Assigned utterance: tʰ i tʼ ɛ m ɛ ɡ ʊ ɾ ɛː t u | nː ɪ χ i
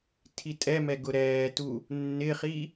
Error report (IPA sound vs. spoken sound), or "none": none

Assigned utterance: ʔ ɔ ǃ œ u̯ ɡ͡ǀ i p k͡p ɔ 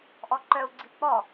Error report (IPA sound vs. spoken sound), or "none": none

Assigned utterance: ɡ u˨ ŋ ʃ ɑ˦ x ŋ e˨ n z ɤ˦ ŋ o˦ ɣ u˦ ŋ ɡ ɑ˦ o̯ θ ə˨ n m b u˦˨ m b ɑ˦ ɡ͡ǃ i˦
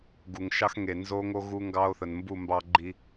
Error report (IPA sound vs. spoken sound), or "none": ɤ˦ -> o˦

